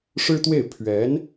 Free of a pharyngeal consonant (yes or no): yes